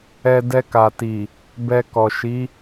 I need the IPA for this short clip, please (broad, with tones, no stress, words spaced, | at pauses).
ɛ˧ dɛ˧ka˨ti˨ | bɛ˧kɔ˨ ʃi˨˦